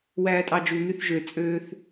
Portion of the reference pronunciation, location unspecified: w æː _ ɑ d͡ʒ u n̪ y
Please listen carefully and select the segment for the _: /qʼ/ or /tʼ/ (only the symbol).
tʼ